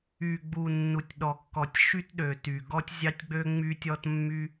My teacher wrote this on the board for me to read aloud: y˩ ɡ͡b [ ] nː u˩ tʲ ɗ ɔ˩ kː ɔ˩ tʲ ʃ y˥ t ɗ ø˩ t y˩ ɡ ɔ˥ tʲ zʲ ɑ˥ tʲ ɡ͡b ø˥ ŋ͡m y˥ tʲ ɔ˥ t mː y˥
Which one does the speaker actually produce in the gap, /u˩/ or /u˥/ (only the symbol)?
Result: u˩